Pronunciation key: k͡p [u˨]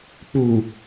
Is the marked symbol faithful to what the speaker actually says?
yes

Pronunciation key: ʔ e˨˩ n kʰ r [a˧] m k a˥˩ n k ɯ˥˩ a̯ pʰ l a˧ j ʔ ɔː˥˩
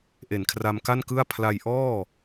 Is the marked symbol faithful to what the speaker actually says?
yes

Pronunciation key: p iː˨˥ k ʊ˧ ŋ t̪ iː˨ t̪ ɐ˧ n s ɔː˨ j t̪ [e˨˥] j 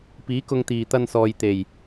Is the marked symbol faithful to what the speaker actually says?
no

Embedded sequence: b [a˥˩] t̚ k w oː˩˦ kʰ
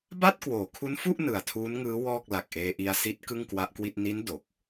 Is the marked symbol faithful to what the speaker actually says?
yes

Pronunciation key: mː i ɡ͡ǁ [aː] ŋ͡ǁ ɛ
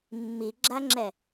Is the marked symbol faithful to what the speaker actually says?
no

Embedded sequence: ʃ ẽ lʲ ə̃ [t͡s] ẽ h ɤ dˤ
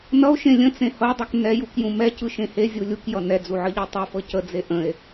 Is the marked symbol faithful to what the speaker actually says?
yes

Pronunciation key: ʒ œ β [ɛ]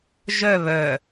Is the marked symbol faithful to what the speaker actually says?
no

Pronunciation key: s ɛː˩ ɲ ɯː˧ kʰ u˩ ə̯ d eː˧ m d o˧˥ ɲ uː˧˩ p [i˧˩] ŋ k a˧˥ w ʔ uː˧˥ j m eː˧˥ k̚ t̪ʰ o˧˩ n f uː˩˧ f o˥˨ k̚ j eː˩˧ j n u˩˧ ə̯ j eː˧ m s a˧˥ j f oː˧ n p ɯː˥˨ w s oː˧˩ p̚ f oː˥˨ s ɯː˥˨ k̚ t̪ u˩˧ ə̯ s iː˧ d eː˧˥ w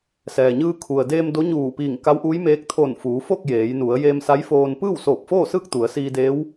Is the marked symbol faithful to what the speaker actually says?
no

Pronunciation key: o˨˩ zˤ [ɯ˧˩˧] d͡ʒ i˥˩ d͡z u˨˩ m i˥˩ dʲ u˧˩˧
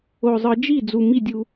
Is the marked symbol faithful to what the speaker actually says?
yes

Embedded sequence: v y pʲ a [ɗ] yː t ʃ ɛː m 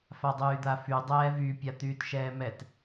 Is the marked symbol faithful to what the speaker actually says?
no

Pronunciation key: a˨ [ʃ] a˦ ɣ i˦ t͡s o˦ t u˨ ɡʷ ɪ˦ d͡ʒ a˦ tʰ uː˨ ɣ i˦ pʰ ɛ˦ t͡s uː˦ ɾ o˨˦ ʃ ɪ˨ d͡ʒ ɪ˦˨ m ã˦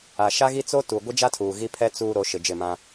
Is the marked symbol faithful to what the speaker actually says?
yes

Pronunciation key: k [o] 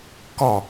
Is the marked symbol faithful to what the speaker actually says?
no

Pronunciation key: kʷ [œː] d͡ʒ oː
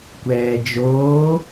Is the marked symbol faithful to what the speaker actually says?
no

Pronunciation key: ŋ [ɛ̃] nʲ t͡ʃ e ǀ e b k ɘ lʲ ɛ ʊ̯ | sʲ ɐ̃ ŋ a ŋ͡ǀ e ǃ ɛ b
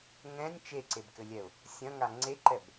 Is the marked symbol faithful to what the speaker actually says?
yes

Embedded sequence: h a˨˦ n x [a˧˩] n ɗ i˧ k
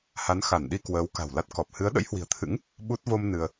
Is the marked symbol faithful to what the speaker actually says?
yes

